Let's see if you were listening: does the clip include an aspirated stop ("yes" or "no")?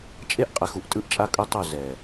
no